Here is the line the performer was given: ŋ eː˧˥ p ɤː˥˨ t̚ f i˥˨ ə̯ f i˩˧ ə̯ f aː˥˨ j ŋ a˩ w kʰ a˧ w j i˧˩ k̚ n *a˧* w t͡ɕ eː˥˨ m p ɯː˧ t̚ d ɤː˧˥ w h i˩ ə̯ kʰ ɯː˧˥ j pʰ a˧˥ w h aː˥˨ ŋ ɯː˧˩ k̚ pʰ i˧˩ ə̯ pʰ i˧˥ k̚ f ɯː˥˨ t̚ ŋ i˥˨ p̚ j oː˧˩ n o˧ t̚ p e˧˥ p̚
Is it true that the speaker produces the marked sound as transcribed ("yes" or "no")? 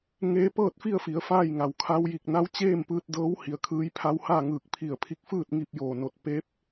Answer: no